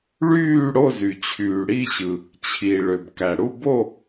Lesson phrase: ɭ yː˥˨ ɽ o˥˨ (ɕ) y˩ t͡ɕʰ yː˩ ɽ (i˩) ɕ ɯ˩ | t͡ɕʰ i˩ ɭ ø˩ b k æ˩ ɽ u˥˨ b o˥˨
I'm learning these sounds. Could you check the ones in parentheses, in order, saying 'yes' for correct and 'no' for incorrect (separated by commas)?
no, no